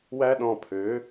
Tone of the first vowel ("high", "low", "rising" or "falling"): high